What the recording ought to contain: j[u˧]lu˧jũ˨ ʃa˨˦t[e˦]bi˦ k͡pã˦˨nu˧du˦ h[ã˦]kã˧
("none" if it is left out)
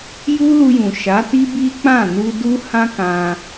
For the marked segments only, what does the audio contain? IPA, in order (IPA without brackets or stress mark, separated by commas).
u˦, i˦, ã˦